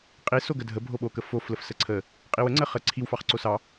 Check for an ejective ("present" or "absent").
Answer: present